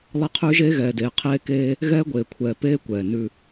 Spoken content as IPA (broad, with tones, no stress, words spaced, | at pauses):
lˠɛ˦qʰʉː˦ʒeː˦ ɣɛː˨deː˨ qʰeː˦keː˦ | ɣɛː˦ɡʷeː˨kʷʰɛː˨peː˦ kʷɛː˨nʉ˦